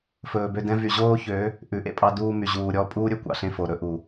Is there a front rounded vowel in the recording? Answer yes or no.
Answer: yes